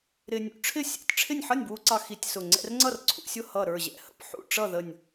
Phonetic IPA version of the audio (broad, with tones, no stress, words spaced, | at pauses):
ɾɪ˧ nʲṵ˧ ʈ͡ʂʰɪ˥˨ sʲɛ̰˥˨tʲ ʈ͡ʂʰɪ˥˨nʲ ħʌ˥˨nʲbwu˧ǀɑ˧ xi˧tʲsʊ˧˩ ŋ͡ǀɛ̰˧rŋ͡ǀʌ˥˨r ǀʰṵ˧sʲʊ˥˨ hʌ˧˩ɾə˞˧˩ʑɛ̰˧˩hə̰˥˨p ħṵ˥˨ʈ͡ʂʌ˥˨ ðə˧˩nʲ